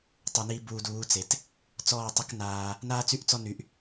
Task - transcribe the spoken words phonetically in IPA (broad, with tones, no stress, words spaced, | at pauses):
tˤu˨niː˧ buː˨d uː˨˦t͡se˨t | t͡sɔː˦˨tˤə˦knaː˧ | naː˦t͡sy˦ʔt͡sɔ˦ ny˧ʔ